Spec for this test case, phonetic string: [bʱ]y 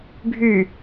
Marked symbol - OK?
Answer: yes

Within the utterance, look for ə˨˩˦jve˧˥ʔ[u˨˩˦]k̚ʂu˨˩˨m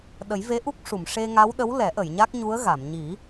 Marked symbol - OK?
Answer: no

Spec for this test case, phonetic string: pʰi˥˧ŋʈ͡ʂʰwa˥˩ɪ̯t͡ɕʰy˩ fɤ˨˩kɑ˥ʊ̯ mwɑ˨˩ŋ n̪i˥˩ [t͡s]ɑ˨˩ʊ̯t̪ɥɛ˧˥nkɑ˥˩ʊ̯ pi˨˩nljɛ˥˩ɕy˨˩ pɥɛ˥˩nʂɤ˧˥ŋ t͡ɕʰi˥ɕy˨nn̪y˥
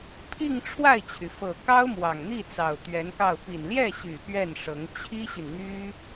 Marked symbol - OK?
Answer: yes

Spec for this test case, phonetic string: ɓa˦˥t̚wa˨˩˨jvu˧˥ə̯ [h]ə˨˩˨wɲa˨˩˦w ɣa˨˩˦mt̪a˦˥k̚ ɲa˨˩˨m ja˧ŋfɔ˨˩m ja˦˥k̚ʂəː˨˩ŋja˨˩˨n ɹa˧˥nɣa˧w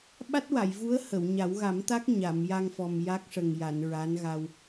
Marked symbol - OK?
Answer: yes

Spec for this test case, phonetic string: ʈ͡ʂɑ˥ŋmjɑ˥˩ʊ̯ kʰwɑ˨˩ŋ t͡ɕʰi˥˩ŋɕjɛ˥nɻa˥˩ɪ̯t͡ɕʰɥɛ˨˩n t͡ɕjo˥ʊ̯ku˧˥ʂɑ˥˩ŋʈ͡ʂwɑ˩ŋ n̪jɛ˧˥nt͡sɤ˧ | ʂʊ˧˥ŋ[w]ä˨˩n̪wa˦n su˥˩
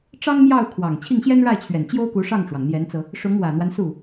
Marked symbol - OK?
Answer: yes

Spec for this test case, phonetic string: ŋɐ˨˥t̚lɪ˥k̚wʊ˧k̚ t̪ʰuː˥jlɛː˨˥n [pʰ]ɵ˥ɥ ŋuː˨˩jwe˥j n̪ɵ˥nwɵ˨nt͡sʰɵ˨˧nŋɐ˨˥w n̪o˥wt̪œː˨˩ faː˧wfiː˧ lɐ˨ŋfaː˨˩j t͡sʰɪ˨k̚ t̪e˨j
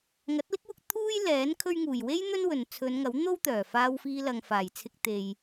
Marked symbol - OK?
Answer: no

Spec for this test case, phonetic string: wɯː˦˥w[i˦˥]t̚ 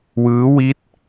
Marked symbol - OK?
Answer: yes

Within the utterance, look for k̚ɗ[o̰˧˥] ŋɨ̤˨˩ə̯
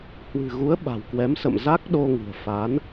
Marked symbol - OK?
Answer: no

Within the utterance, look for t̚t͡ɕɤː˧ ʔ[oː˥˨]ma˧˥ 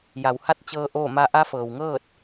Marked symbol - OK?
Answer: yes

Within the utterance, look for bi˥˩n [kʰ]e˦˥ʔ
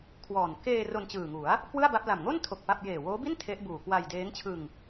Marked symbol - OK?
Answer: no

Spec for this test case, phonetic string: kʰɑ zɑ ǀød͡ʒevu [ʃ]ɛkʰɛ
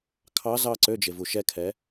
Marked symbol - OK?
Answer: yes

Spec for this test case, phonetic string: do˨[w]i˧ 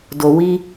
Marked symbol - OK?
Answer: yes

